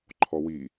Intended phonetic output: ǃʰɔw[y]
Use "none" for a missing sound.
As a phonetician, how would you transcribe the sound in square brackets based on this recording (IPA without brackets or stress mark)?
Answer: i